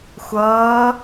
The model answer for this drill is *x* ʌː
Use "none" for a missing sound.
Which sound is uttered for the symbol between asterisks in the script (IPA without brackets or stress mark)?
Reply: xʷ